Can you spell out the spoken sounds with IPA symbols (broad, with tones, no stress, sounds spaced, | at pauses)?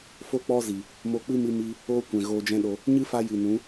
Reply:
f o˦ k͡p ɔ˦ z i˨ | m o˧ k͡p ɨ˦ m ɨ˧ m i˧ | oː˦ kʷ ɛ̃˨ ɣ oː˧ d͡ʒ ɛ̃˦ ɗ o˧ | ɲ ɨ˦ f a˧ j ɨ˨ n ũ˨˦